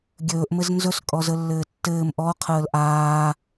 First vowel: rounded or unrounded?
rounded